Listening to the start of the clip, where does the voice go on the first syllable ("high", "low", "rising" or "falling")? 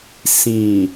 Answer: low